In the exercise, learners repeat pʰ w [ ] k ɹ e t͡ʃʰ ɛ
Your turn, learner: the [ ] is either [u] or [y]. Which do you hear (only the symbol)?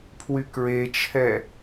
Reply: y